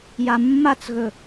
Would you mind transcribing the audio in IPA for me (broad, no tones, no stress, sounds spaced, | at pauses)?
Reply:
j a mː a t͡s ɣ ɵ